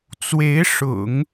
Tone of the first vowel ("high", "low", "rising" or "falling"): rising